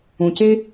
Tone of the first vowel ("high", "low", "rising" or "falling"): low